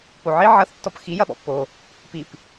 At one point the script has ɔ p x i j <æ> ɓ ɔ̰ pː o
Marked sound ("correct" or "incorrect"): incorrect